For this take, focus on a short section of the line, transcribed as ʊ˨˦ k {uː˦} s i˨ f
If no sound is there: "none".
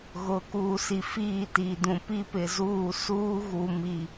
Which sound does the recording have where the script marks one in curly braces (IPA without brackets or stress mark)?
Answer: uː˨